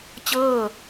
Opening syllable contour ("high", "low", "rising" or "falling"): falling